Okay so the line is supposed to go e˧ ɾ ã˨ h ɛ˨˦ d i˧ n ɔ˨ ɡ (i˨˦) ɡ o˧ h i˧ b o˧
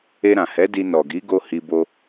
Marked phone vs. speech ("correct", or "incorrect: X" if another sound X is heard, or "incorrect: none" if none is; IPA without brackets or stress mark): correct